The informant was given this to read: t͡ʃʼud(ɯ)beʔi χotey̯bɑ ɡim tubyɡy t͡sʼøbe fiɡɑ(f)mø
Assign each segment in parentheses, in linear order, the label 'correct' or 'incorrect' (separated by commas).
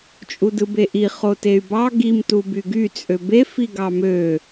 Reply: correct, incorrect